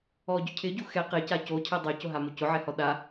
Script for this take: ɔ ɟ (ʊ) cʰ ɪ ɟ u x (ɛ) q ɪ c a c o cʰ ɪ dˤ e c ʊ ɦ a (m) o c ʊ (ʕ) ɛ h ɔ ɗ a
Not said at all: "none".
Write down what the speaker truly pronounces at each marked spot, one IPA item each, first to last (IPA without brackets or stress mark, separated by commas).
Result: ʊ, ɛ, m, ʕ